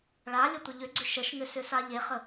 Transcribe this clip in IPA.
ɭ a lʲ ə tʷ ə ʎ ʏ ɡ͡ǀ ʏ ʃ ə ʃ ŋ ʏ s ʏ s a ʎ e χ ə

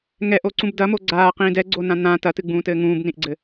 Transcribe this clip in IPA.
ŋ ɛ ʔ o ǀ ũ b d ɐ m o ɡ͡ǀ aː q ĩː d ɛ ɡ͡ǀ o n ã n̪ ã t ɐ t ɨ ɡ͡b ũː t ɘː ŋ ũː b n ĩ ʔ ɡ͡ǀ ɘ

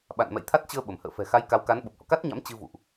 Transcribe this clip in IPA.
ɓ a̰˧˨ n m ɛ̰˧˨ j t̪ʰ a˦˥ t̚ t͡ɕ əː˧ ɓ ə˧˩ m h ə̰ː˧˨ f ɛ̤˨˩ x a˨˦ j k a˨˦ w k a˨˦ n ɓ ə˨˩ p̚ h ɔ̰˧˨ k a˦˥ t̚ ɲ a̰˧˥ m t͡ɕ ɨ˧ v ṵ˧˨ ʔ

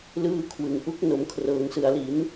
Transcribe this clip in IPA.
l ɯː˦˥ kʰ w ɯ˩˦ ŋ ʔ u˦˥ k̚ n o˩˦ m kʰ r ɤː˩˦ ŋ s ɯ˨˩ a̯ l i˩˦ n

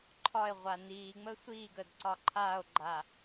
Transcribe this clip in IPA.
ǃʰ ɒ e̯ ʁʷ a n iː ŋ͡m əː sʷ iː ɡ əː d ǀ ɒ ǃʰ aː o̯ ɡ͡ǃ a

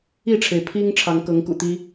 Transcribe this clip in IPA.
i˥˨ ʈ͡ʂʰ e˩ ɪ̯ pʰ i˦ ŋ ʈ͡ʂʰ ɑ˨˦ ŋ k ɤ˨˦ ŋ k ṵ˨˩ t̪ i˦

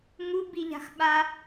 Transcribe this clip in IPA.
ŋ u b i ʎ a̤ x ɓ a

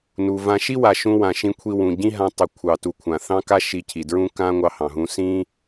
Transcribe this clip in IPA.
n u˩ v ã˧ ʃ i˥ w a˩ ʃ ũ˧ w ã˩ ʃ ĩ˧ kʷʰ i˧ w ũ˩ ɟ ĩ˥ ɦ ã˧ tˤ i˩ kʷʰ ɑ˩ t u˩ kʷʰ ã˩ θ ɑ̃˥ k a˥ ʃ i˧ cʰ i˩ d ɹ ũ˥ k ã˥ ŋʷ ɑ˧ h ɑ̃˩ ɦ ũ˧ s ĩ˥

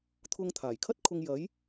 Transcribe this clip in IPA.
t̪ʰ ʊ˧ ŋ t̪ʰ aː˨˩ j kʰ ɐ˥ t̚ kʰ ʊ˧ ŋ j ɐ˨˥ j

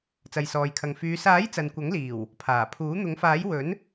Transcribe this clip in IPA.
t͡s ɐ˨ j s ɔː˨ j kʰ ɐ˨ ŋ f yː˨˧ s aː˨˥ j t͡s ɐ˨ n kʷ ɐ˨˥ ŋ l iː˨˩ w | pʰ aː˨˩ pʰ uː˨˥ n̪ ʊ˨˥ ŋ f aː˨˥ j w ɵ˨˥ n

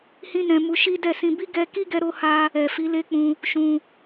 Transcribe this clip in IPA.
h ĩ˦ n ɛ̃˧ m u˧ ʃ i˦ d ɛ˦˨ s ĩ˧ b i˦ ɡ ɛ˧ k i˦ ɡ ɛ˧ ɾ o˦ h a˦ | ɛ˨ f i˨˦ l e˦ k͡p ũ˧ | ʃ ũ˧

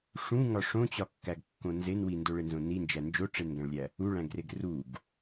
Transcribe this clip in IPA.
ʂ ũ ŋ ɒ ʂ õ t͡ɕ ɒ kː æ ɡ kː õ n z e n w i n d o ɭ e n z õ n i n d͡ʒ æ n d͡ʒ o ʈ͡ʂ e n ɡ æ̃ ɭ lʲ æ | u ɭ æ̃ ɡ r e ɡ r u ɡ

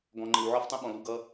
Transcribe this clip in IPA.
ɡ ɔ̃˨ ŋ͡ǃ ɪ˨ w ʕ ɔ˦ f tˤ ũ˦ ɓ ɔ̃˨ l u˨ ɡ ʌ˦

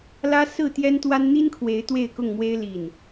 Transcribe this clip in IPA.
l ä˦ s ɹ̩˥˨ t̪ j ɛ˦ n t̪ w a˦ n n̪ i˦ n kʰ w e˨˦ ɪ̯ t̪ w e˥˨ ɪ̯ k ʊ˥˨ ŋ m w e˦ ɪ̯ l i˥˨ n

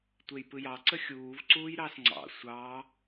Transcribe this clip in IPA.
tʷ e j p ɯ j ɑ ǀ ə xʲ uː v ǀ uː j ɾ ɑ s ŋ͡ǀ ɑ̰ sʷ ɑ

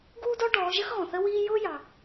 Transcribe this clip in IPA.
ɡ uː˥ d ɔ˥ ɖ ɔː˨˦ ʒ ə˥ x ɣ ɔ̃˩ θ ə˥ w iː˥ j ʊː˥ j ɑ˩

